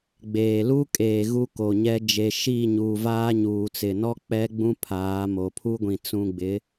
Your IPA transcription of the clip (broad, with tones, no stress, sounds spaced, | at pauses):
ɡ͡b eː˨ l u˦ kʼ eː˨ ɣ u˦ k o˨ ɲ ɛ˦ d͡ʒ e˨ ʃ iː˦˨ ɲ uː˨ v aː˦ ɲ uː˨ t͡s ɪ˨ n ɔ˦ k͡p ɛ˦ ɡ͡b ũ˦ pʰ aː˨˦ m o˨ pʰ u˦ ɡʷ ĩ˨ t͡s ũ˨ ɡ͡b ɪ˨˦